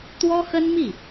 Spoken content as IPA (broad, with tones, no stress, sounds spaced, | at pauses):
t̪ w ɔ˥ x ə˥ n m i˥˩